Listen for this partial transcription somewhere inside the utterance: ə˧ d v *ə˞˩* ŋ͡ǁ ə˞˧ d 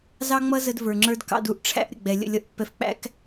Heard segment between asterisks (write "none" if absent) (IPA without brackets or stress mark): ə˞˩